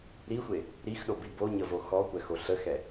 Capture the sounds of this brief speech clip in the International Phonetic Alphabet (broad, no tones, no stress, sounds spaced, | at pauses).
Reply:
ɾ i xʷ e | ɾ i x ɗ o b i b o ɲ ə v o x ɔ kʷ ɛ x o ɬ ə x ɛ